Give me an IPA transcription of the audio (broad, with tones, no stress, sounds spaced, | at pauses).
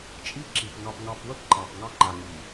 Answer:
t͡ʃʼ i˦ ǁ i˨ p ŋ ɑ˨ p ŋ ɑ˨ p w ə˦ p ǃ ɑ˨ p ŋ ɑ˦ ŋ͡ǃ a˨ ŋ i˨